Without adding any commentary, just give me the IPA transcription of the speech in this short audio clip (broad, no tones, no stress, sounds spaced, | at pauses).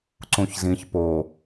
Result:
ǀ ũ ç z ĩ ç p o